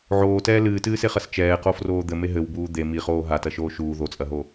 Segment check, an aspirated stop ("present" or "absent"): absent